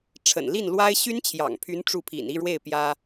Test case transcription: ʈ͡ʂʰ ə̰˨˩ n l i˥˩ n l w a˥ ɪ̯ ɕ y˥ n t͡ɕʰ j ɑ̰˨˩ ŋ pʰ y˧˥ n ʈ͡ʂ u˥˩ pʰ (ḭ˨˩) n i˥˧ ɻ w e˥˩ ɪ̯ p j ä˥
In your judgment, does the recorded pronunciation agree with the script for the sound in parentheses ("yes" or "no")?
yes